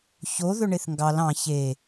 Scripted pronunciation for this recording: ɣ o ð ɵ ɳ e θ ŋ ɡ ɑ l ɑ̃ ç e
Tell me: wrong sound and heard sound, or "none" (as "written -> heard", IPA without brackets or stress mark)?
ɣ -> ç